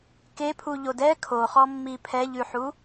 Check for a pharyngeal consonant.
present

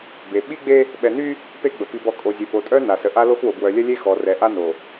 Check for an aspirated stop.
absent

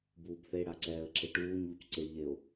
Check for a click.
present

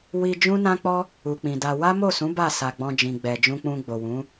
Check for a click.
absent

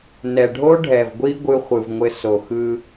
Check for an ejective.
absent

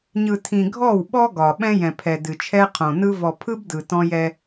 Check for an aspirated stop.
present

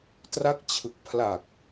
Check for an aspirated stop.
present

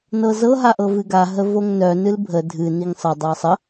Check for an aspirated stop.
absent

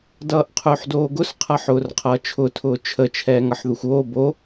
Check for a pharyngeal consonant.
present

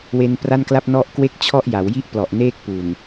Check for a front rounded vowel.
absent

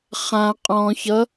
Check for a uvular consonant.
present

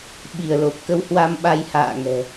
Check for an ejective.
absent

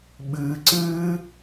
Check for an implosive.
present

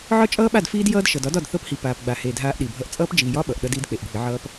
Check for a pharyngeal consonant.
present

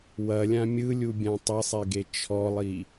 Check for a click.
absent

